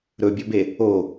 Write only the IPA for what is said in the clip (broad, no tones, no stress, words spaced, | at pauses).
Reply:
ɾɵbʲɵbe | o